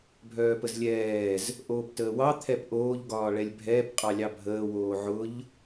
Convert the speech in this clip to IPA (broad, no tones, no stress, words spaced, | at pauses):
bʱœːpəzlʲɛːz | ʔoːptəːwɑ t̪ʰɛpʔoːʎ ɡɒːɭɛlʲbʱɛːp qʼɑlʲɑbʱəː woːʕʊʎ